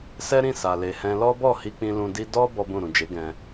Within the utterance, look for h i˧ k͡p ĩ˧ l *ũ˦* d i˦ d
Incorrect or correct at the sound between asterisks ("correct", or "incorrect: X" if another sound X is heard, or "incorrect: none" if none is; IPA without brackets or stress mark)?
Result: incorrect: ũ˧